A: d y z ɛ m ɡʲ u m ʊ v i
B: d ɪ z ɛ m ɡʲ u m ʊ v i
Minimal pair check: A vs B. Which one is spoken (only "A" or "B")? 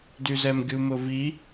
A